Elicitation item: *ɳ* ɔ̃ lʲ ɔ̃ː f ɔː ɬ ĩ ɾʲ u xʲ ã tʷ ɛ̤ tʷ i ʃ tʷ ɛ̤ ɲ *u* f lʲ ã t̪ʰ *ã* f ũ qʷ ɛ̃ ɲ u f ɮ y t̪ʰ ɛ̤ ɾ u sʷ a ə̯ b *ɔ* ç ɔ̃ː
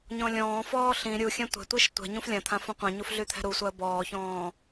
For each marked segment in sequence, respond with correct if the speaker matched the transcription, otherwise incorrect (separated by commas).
incorrect, incorrect, correct, incorrect